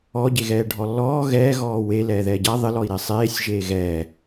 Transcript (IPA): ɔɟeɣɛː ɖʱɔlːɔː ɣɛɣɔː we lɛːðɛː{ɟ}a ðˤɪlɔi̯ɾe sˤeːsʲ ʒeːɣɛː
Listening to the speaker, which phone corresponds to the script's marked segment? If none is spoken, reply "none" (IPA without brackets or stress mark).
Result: ɟ